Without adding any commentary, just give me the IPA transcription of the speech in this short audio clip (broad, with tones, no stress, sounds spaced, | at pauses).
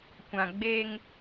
kʷ ã˨ ɡ͡b eː˦ ŋ